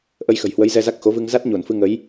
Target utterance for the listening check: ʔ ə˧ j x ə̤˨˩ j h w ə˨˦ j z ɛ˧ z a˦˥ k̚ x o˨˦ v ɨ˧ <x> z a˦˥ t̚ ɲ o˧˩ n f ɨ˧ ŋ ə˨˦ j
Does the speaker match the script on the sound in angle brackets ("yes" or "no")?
no